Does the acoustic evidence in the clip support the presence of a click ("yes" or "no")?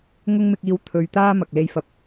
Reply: no